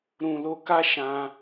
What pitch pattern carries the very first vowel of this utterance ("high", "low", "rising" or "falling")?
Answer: low